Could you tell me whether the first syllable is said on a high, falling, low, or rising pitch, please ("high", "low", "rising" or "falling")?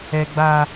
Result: high